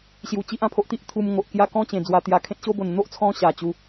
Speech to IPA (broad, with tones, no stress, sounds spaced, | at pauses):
ɕ j u˨˩ t͡ɕ i˦ ʔ ã˧ pʰ o˦ ʔ t̪ i˦ ʔ t̪ʰ u˧ m ŋ o˨ ʔ k j a˥˧ k ɔ̃˦ t͡ɕ ẽ˨˩ d͡z w a˧ t̪ j a˧ kʰ ẽ˦ t̚ ɕ o˦ b o˨˩ n n̪ o˦ ʔ t͡sʰ ɔ̃˧ ɕ a˨˩ t͡ɕ u˨˦